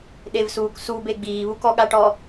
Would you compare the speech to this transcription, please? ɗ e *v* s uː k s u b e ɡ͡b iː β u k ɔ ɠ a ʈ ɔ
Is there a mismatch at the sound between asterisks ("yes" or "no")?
no